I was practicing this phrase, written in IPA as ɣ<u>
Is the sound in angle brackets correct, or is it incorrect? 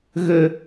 incorrect: ø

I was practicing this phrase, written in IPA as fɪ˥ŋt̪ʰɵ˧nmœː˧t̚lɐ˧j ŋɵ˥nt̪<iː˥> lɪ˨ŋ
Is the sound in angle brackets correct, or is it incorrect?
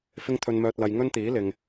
incorrect: iː˨˥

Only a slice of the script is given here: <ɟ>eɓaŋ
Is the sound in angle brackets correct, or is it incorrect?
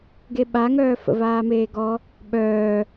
incorrect: ɡ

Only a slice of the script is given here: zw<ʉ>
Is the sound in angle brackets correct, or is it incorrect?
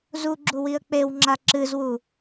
incorrect: u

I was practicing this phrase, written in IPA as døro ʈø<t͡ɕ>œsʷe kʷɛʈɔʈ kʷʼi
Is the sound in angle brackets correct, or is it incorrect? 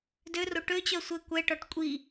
correct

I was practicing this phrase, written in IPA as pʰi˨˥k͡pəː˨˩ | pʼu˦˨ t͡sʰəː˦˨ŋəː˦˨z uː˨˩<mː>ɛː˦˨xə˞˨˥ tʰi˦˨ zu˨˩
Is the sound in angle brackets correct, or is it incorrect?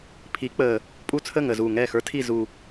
incorrect: ŋ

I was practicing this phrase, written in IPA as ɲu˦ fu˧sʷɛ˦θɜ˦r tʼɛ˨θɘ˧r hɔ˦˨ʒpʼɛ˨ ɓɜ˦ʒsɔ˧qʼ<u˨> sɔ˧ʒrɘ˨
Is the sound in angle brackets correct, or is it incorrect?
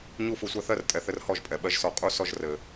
incorrect: u˦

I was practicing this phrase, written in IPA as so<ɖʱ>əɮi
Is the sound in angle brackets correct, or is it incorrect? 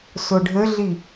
correct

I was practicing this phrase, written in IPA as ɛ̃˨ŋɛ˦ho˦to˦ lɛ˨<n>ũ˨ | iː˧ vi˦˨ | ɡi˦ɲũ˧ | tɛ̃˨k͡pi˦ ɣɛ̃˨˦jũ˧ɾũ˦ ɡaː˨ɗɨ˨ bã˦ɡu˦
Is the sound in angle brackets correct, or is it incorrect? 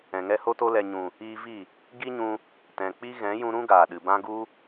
incorrect: ɲ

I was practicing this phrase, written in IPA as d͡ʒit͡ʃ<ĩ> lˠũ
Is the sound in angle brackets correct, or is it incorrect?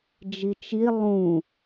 incorrect: i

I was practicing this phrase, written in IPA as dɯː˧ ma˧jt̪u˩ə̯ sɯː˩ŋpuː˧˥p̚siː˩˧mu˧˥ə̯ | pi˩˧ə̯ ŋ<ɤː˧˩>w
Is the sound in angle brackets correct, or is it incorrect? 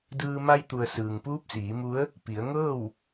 incorrect: ɤː˥˨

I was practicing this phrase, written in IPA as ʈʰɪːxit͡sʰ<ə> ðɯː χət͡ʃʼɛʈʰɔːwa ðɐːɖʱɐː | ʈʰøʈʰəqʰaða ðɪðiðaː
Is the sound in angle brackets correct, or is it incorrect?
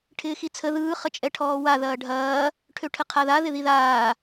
correct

